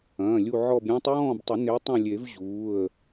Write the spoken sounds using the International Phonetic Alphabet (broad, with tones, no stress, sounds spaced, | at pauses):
ɐ̃ː˩˧˩ lʲ u˦˨ ʕ ɔ˦˨ b ɾʲ ũː˦ tˤ j ɔ̃ː˦˨ b tˤ ɵ˨˩˦ n e˨˦ tˤ ɐ̃˦˨ lʲ e˨˩˦ v ʑ uː˩˧˩ ə̯